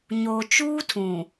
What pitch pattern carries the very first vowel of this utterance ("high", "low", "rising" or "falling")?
low